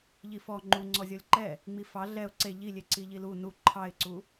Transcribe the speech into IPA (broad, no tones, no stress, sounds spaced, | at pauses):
ʎ i f ɔ ŋ͡ǃ u ŋ͡ǀ ɔ zʲ ɔ lʲ ǃ ɛ | ŋ͡m i f ɑ ɮ ɛ ʊ̯ ǀ e ʎ i lʲ e ǀ i ʎ i l u n u ǃʰ ɑ ɪ̯ ǀ u